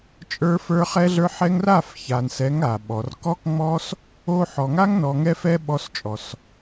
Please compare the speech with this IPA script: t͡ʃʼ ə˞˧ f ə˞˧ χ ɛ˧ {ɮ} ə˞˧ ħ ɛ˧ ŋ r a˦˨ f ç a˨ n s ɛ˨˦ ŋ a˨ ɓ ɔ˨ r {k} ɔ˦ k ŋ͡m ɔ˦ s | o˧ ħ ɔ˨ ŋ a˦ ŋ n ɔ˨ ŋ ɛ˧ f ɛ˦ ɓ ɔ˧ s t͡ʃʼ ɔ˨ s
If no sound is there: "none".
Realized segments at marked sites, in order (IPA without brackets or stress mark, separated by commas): ɮ, k